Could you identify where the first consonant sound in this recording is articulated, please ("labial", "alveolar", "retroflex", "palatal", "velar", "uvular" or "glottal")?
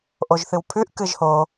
glottal